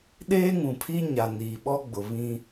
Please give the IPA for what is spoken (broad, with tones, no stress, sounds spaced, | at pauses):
ɗ eː˦ ŋ ũ˨ pʰ iː˦ ɲ a˨ n iː˨ ɓ ɔ˦ ɡ͡b ʊ˨ β ĩ˦